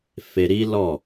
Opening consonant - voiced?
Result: no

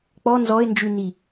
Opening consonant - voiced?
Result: no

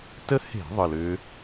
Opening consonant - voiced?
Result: no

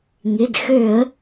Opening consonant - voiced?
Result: yes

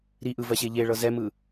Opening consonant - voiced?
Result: yes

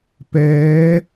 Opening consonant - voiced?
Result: no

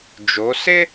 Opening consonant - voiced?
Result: yes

